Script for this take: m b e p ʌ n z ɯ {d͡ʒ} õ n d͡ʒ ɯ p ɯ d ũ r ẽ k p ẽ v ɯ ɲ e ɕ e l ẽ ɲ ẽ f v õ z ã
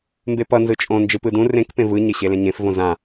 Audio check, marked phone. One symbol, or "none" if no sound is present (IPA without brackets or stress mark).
t͡ʃʼ